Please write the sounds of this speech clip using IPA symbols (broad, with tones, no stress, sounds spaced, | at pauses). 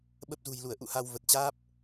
ɓ ə˦˥ p̚ z ṳ˨˩ j l u˧˩ ə̯ ʔ ṵ˧˨ h a˧ w v ə˨˩ t̚ t͡ɕ aː˦˥ p̚